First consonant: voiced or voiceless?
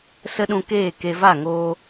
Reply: voiceless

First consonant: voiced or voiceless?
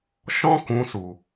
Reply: voiceless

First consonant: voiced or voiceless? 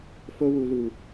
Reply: voiceless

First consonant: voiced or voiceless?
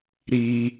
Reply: voiced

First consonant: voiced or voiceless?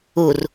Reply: voiced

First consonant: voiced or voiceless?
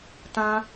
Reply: voiceless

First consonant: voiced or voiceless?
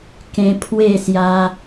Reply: voiceless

